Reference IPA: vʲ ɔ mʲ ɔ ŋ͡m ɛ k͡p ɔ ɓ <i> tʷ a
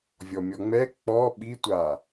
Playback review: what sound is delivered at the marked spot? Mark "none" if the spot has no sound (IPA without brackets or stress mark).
i